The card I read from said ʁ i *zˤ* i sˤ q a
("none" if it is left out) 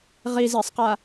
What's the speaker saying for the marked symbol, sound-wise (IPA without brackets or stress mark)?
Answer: z